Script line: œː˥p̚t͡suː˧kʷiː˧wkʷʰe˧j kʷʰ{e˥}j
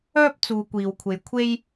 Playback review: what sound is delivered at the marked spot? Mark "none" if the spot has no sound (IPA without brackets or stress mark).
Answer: e˥